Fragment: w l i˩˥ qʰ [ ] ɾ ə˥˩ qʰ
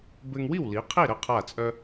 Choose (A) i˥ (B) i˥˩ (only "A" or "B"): B